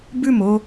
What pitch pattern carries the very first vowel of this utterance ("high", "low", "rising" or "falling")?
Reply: falling